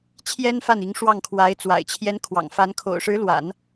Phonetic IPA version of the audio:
t͡ɕʰjɛ˥nfa˥˩ni˧˥ŋ ʂwɑ˥˩ŋkʰwa˧˥ɪ̯ t͡swa̰˨˩ɪ̯t͡ɕʰjɛ˧˥nkʰwɑ̰˨˩ŋ fa˧˥n kʰo̰˨˩ʊ̯ʂɻ̩˧˥lwa̰˨˩˦n

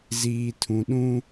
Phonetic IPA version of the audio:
ziː˨tʰũ˨ɗũ˦

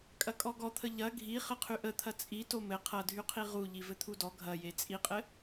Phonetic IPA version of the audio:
kʼɐkʼɔɡɔt̪ʰə ʎɐ ɡʱi χɘqʰyʔət̪ʰɐ t͡sʼito mɘ qʰɐdʱyqʰi ʁuʎi vɘt̪ʰudɔ ɡʱɐje t͡sʼiqʼɘ

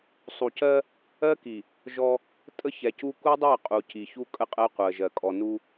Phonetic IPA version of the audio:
sˤu˨cɜ˦ | ɜ˦ki˨ | ʒɔ˦ | tʼə˦çɛ˨cu˦ ku˦dˤɜ˦˨ qʼu˨ci˨ çu˦kʼə˦ qʼɜ˦qʷɜ˨ʒɜ˨ kʼɔ˨nu˦

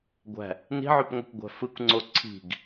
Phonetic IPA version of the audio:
ɡʷæ̤ | ni̤ʕypŋʷɯkʷ ɡʷæ̤fɯkʷŋ͡ǀo ǀʰi̤ɡ

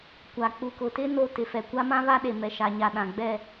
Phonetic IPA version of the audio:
kʷa˨k͡pu˨kʊ˨ tɪ˦ no˦tɪ˨ fɛ˨kʷa˦ mã˦βa˦ɗe˨ mɛ˨ʃa˨ɲa˨ɗã˨ ɡ͡bɛ˦˨

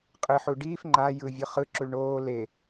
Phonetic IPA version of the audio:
qʼɯħu ɖiːf ŋ͡ǃa jɯvʲɯ χɯǁuɭ ɳoː le

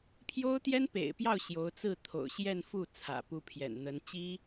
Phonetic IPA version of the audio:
pʰjo˥ʊ̯t̪jɛ˥npḛ˨˩ɪ̯pjɑ˥˩ʊ̯ ɕjo˧˥ʊ̯t͡sɹ̩˥˩ t̪ʰo̰˨˩ʊ̯ɕjɛ˥˧nfu˥˩ t͡sʰä̰˨˩pu˧˥pʰjɛ̰˨˩nn̪ə˧˥n t͡ɕi˥

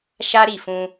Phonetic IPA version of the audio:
ʃa˦ ɾi˦˨fũ˧

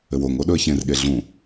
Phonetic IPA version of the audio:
ɘwoŋo ɗɵə̯çẽrɠe ɮũ

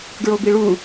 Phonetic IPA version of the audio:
ɡɹobiɭu

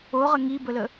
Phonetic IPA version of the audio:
oʁə ŋibələ

